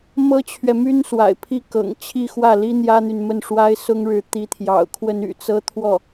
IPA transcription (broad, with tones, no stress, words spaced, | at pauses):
mɤ˥t͡ɕʰɥɛ˨my˥n swa̰˨˩ɪ̯pʰi˥˩kɤ̰˨˩ŋ t͡ɕʰi˥˧xwä˥˩li˥ n̪jä˥n̪y˨nmə˥˩nʂwa˥ɪ̯ sʊ˥ŋɻɻ̩˧˥ t̪i˧˥t̪ʰjɑ̰˨˩ʊ̯ kʰwə˥ny̰˨˩t͡sɤ˥ t̪ʰwɔ˥˩